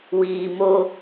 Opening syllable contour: low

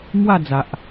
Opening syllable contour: falling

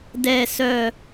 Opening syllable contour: falling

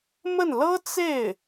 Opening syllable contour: falling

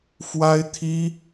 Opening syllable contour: high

